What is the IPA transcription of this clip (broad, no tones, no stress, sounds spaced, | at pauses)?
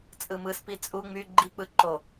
t͡sʼ ɯ m ɯ s p i t͡sʼ u ŋ͡m y ɡ͡ǃ i k͡p ɯ ǃ o